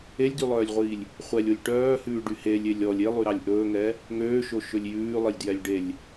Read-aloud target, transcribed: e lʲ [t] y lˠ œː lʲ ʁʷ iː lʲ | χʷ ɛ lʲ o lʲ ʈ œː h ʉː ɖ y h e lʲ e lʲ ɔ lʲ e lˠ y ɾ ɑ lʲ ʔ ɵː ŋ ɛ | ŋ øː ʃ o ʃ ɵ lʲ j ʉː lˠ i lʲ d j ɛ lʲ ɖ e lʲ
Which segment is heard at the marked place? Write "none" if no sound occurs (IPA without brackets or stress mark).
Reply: d